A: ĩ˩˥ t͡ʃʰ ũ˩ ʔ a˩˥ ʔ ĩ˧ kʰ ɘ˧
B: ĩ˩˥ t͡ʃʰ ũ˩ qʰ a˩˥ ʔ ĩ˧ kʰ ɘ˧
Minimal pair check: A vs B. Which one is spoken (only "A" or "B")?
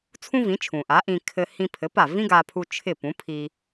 A